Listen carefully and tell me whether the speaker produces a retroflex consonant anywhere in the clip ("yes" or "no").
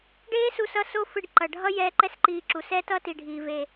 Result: yes